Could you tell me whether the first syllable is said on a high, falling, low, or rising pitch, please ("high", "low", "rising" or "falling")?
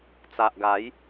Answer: low